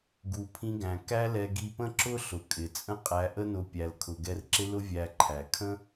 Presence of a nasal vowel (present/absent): present